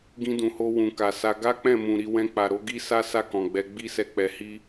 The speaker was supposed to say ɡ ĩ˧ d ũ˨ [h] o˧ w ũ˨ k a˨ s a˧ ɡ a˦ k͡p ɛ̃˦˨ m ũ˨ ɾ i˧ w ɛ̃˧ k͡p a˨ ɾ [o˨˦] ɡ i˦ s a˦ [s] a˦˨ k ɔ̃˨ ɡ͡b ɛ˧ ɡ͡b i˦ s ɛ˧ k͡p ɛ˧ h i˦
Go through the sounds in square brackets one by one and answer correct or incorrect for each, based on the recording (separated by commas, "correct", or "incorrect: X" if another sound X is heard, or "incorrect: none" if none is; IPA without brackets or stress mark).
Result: correct, correct, correct